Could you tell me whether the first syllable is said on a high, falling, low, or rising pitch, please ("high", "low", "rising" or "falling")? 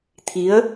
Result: rising